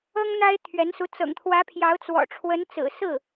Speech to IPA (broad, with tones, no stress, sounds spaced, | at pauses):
ɤ˥ ŋ n̪ a˥ ɪ̯ t̪ʰ ɥ ɛ˧˥ n s u˧˥ t͡s ɤ̰˨˩ ŋ t̪ʰ w ä˧˥ pʰ j ɑ˧˥ ʊ̯ t͡s w ɔ̰˨˩ ʈ͡ʂʰ w ə˧˥ n t͡s ɹ̩˨˩ s ɹ̩˥˩